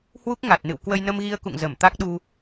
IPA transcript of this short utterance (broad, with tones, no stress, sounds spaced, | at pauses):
h w u˦˥ k̚ ŋ a˨˩ t̚ n ɨ̰˧˨ w k w ə˧ j n ə˧ m ɣ i˧ ə̯ k ṵ˧˨ ŋ z ə˧˩ m t̪ a˦˥ k̚ ɗ u˧